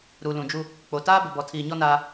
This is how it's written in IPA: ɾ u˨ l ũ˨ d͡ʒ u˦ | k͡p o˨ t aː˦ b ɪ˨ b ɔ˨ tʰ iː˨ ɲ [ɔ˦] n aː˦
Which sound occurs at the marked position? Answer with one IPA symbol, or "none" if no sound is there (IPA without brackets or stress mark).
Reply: ɔ˦